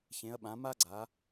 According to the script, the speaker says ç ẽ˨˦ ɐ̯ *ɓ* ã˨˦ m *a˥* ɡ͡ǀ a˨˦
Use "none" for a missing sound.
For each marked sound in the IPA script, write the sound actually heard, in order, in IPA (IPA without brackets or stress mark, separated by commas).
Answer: ɓ, a˥